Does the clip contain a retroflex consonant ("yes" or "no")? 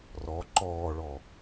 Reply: yes